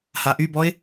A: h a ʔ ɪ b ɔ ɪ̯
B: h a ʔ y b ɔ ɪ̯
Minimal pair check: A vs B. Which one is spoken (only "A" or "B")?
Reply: B